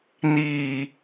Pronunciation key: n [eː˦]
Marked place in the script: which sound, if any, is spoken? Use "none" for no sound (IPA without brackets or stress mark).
iː˦